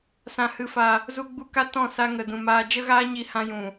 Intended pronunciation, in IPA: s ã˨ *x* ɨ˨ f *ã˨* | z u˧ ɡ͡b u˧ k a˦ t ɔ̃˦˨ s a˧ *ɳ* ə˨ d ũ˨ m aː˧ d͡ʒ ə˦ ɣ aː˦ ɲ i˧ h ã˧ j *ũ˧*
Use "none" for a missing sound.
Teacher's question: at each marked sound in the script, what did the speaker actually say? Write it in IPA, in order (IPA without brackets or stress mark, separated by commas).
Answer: h, a˨, ŋ, ũ˨